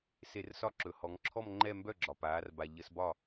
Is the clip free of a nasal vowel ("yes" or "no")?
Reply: yes